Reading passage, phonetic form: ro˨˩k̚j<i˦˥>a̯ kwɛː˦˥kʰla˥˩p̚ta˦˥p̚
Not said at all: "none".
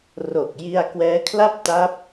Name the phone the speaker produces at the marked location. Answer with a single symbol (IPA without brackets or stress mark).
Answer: i˧